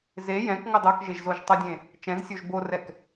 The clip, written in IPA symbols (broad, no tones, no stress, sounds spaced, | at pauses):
z e j ɛ̃ k ŋ o dˤ o k ʒ e ʒ z o ʒ tˤ ʌ dʲ ẽ | t͡ʃ ɛ̃ z sʲ o ʒ b o r ɛ k